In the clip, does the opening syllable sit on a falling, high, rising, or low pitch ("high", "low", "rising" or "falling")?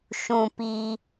low